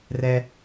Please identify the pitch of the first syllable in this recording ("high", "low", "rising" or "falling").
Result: high